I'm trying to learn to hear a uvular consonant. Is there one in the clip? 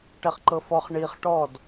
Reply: yes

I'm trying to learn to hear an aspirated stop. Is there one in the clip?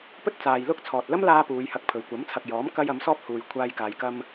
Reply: yes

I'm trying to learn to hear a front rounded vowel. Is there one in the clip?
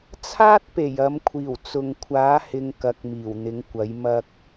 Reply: no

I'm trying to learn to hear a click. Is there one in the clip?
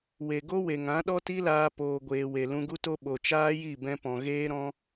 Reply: no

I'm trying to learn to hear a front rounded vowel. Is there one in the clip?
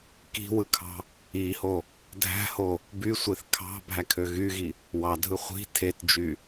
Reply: yes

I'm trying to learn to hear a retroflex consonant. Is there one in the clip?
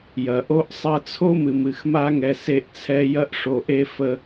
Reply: yes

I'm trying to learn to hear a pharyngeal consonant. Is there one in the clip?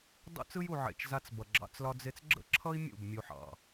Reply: yes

